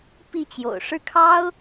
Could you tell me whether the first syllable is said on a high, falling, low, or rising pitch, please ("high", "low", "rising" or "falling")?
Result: falling